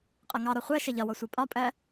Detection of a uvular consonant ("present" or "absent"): present